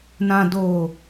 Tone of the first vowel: low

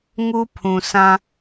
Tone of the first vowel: high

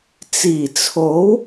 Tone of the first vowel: low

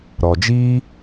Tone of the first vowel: low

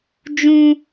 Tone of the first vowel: high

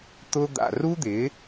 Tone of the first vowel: high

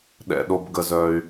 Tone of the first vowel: low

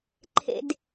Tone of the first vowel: low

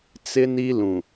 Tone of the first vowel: high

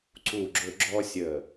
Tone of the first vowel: falling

